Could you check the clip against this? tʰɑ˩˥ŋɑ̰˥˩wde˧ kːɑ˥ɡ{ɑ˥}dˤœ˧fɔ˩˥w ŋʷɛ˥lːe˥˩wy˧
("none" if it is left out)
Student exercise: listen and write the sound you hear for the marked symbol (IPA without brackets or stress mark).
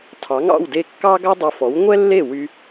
ɑ˥